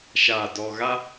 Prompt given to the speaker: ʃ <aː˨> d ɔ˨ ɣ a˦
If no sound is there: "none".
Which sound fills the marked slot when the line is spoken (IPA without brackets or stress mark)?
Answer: aː˨